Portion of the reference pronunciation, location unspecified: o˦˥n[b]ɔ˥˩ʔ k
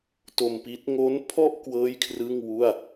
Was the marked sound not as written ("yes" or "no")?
yes